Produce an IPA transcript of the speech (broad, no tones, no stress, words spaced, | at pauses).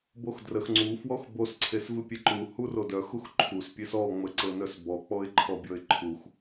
boxdrəx ŋ͡ǀu fwɔxbos ǀʰesvɨpʲeǃu hurodœ xuxǃʰus pʲesɔ ŋ͡məǀɤnœsbɔ k͡pɔɪ̯ǃʰɔbʲɔɪ̯ǃʰux